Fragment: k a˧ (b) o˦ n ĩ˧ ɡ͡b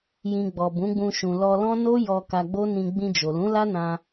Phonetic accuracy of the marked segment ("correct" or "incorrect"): incorrect